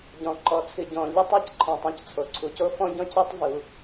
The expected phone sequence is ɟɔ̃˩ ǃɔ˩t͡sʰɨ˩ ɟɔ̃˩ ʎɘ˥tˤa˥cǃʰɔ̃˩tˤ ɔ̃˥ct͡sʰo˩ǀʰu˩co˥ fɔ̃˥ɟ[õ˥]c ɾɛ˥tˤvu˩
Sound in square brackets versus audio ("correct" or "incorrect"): incorrect